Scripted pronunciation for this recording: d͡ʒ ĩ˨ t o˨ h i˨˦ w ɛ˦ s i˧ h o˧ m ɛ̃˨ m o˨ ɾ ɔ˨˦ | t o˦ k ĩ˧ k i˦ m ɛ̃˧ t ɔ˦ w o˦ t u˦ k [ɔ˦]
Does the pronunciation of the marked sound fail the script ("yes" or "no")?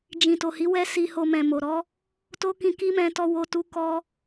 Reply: no